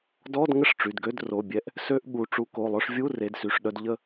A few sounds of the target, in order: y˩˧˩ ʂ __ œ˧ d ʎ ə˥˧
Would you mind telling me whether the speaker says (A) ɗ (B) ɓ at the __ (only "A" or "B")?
A